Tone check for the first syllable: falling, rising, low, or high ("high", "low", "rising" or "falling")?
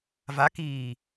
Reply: rising